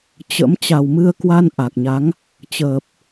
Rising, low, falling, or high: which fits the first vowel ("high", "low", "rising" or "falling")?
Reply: rising